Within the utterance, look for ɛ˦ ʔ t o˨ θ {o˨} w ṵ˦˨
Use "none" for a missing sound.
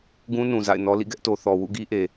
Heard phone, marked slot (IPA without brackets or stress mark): ɔ˨